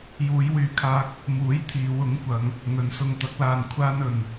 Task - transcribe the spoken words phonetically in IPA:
j uː˨˧ j w yː˨ kʰ aː˧ k̚ | m uː˨˥ j t̪ʰ iː˨˧ w ʊ˨˥ ŋ kʷ ɐ˨˧ ŋ | ŋ ɵ˨˧ n s ʊ˧ ŋ t̪ ɐ˨˥ k̚ l aː˧ n kʷʰ aː˥ n ɵ˧ n

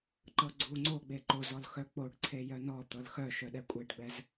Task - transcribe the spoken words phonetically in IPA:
ǃ ɤ ɡ͡ǀ u ŋ͡ǀ o ɡ͡b e ǃ o z ɔ l x œ k͡p o ɖ ǀʰ e j œ n ɔ t̪ ɤ l x œ ʃ œ ɗ ɛ kʷʼ e ɖ ɡ͡b ɛ z

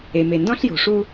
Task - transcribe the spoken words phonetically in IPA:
e˨ m e˨ n d ɔ̃˦ ɬ j o̤˨ ʂ u˦

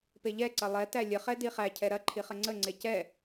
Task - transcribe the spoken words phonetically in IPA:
p e ʎ ɛ ǀ ɐ lˠ ɛ t æ lʲ ə χ ɛ d i χ æ cʰ ɛ ɾ ɐ ǃʰ i χ ə ŋ͡ǀ ə ŋ͡ǀ e c ɛ

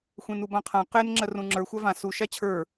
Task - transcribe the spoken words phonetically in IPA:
xʷ ẽ n u b ã qʰ ã q e n ŋ͡ǁ ɜ r ũ ŋ͡ǁ ə˞ xʷ a v ã s u ʃ a t͡ɕʰ ə˞

